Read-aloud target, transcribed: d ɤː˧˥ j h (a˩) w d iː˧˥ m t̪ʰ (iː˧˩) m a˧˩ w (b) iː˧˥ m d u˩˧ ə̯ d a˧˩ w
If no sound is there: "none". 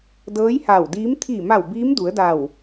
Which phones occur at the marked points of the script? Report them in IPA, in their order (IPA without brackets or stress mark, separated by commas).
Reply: a˧˩, iː˧˩, b